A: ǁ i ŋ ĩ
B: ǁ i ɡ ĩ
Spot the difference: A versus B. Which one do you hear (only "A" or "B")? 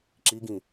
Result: B